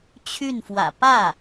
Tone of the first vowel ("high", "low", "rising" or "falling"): falling